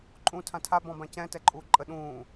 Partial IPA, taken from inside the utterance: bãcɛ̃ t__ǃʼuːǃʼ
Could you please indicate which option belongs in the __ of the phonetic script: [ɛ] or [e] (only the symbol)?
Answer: ɛ